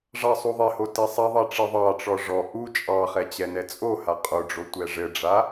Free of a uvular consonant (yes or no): no